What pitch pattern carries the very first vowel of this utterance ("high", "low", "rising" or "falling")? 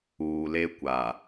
low